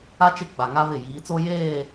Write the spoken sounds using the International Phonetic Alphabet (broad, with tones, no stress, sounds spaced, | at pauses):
a˦ t͡ʃ ɪ˦˨ ɡ͡b a˨ ŋ a˦ β ɪ˦˨ j iː˨˦ t͡s o˦ j eː˦˨